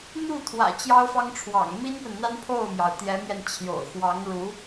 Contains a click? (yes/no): no